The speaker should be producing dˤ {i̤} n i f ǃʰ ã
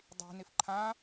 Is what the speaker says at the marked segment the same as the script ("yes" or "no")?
yes